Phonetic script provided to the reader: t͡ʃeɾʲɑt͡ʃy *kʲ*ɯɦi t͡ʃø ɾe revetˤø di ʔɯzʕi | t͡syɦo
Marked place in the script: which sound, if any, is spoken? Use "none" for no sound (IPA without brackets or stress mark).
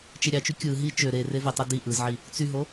kʲ